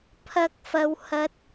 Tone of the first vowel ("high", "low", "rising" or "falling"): high